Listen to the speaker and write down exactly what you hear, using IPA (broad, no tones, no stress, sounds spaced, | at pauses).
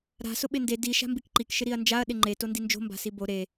ɾ a̤ s ʊ ɓ ɪ n d e d i ʃ a̤ m b i k ǃ i k ʃ ɪ ɾ i ɐ̯ n d͡ʒ a ɐ̯ ɗ ɪ ŋ͡ǃ e t o n d i n d͡ʒ o̤ m b a̤ s i b o ɾ e